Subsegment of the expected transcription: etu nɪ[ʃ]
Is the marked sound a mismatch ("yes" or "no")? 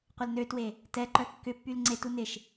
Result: no